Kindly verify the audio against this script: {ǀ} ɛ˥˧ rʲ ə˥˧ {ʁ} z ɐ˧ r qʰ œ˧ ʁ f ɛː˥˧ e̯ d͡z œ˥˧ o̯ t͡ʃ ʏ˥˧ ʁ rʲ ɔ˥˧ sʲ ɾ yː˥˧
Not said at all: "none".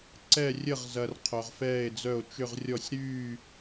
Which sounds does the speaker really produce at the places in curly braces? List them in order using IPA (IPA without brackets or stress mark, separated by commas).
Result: ǀ, ʁ